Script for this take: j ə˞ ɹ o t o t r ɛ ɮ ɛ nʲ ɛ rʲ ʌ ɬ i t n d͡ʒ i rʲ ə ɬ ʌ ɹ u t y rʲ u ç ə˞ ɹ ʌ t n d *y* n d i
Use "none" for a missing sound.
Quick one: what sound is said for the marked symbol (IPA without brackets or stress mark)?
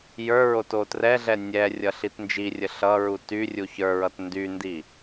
y